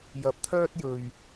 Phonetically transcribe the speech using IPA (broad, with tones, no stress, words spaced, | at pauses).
jɐ˧p̚t̪ʰœː˥t̚jɵ˧ɥ